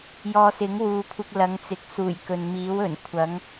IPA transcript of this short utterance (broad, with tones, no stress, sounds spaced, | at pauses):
j ɔː˧ s ɪ˨˥ ŋ w uː˨˧ kʷʰ ɪ˧ k̚ l ɐ˨˥ ŋ t͡s ɪ˨˥ k̚ s uː˨˩ j k ɵ˨ n m iː˨˥ w ɵ˨˩ n kʷʰ ɐ˨˥ ŋ